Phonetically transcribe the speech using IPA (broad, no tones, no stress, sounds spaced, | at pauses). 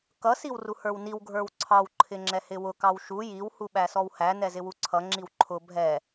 k ʌ s i w r u h ə˞ w n i w ɡʱ ə˞ w ǀʰ ɑ w ǃʰ ɪ ŋ͡ǁ ɛ h ɪ w ʊ k ɑ w ʃ u j i w h u ɓ æ s ɔ w h æ n ɛ z ɪ w u ǀʰ ʌ ŋ͡ǁ i w ǃʰ ʊ bʱ ɛ